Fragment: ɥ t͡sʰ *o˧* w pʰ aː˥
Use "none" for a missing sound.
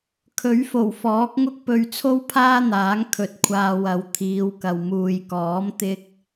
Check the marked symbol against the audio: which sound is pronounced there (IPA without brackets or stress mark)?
o˥